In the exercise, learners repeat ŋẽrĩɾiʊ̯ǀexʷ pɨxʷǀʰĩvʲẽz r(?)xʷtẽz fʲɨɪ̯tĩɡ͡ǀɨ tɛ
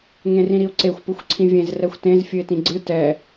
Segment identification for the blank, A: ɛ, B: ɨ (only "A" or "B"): A